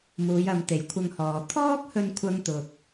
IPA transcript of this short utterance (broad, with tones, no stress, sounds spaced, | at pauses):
m uː˨˧ j ɐ˨˧ m t̪ e˨˥ j kʷʰ ɐ˧ ŋ h ɔː˨ t̪ʰ ɔː˥ k̚ h ɵ˧ n kʷʰ ɐ˥ ŋ t̪ ʊ˧ k̚